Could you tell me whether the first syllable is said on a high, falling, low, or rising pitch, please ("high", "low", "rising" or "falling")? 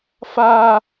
high